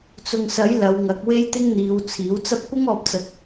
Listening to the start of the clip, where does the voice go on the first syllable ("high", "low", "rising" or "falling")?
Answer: low